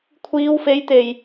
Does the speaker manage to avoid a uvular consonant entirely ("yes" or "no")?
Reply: yes